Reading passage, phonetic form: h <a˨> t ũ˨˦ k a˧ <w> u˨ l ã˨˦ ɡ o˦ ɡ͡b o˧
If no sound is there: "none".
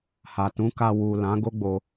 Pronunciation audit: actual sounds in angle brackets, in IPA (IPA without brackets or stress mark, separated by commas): a˨, w